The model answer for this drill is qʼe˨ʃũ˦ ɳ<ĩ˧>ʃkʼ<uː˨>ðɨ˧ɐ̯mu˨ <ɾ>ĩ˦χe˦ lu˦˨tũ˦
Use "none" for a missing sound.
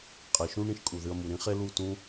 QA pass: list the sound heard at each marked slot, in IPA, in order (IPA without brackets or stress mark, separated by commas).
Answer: ĩ˧, u˨, ɾ